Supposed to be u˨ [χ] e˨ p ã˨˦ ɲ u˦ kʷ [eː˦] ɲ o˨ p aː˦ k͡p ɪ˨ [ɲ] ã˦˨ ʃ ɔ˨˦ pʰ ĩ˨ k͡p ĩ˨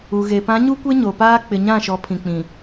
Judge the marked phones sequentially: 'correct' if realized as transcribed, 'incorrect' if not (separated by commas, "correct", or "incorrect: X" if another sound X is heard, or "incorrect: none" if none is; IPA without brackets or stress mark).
incorrect: ɣ, incorrect: e˦, correct